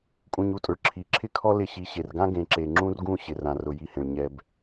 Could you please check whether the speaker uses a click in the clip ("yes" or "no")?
yes